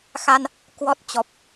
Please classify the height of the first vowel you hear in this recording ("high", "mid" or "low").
low